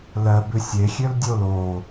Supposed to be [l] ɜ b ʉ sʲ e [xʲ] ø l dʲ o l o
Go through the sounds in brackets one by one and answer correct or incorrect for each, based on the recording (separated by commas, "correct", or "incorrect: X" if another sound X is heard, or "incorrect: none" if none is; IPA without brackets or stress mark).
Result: correct, correct